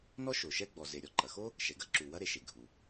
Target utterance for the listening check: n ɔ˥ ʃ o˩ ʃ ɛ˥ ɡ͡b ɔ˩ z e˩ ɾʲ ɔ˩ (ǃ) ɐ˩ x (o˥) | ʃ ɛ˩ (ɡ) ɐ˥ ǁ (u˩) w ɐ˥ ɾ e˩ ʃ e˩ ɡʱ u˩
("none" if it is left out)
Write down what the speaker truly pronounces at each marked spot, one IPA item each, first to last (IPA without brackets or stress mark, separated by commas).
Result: ǃ, o˥, ɡ, u˩